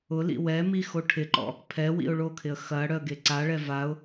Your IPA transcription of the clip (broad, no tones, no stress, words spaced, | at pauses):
ʊlḭ wɛmi xoʈʰɪǃɔ̰ | pʰɛwḭʊ̯ ɭokʰɪə̯ xɐ ɽœə̯ɡeǀaɭɛ vaʊ̯